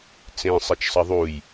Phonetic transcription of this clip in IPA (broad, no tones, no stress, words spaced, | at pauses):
t͡sẽ sˤet͡ʃsˤɐðˤuj